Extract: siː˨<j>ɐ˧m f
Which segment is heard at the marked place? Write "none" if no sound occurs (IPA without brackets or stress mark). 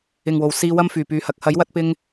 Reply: w